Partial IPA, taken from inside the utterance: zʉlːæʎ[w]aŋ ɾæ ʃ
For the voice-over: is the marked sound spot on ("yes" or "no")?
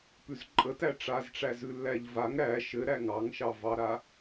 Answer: no